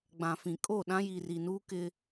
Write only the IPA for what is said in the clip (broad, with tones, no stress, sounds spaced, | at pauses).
ɡ͡b ã˨ f ĩ˨ kʼ oː˦˨ ɗ ã˦ j i˨ r i˨ n uː˦ k ɪ˦